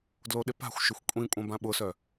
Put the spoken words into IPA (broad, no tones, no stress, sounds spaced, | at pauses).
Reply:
d l o ɗ ɪ p a̤ xʷ ʃ ʏ xʷ kʷʼ ĩ kʷʼ ɐ̃ b ã ɓ ʊ s œ